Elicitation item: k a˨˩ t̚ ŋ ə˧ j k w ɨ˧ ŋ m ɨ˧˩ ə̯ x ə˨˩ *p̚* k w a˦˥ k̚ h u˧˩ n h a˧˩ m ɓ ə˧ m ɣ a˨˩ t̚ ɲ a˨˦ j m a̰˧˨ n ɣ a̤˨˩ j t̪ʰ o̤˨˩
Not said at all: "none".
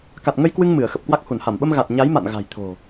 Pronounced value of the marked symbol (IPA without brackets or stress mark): p̚